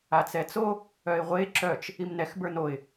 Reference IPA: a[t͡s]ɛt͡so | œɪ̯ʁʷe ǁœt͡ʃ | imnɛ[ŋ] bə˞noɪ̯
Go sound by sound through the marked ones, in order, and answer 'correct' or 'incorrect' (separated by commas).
correct, incorrect